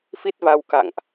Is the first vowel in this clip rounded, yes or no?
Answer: no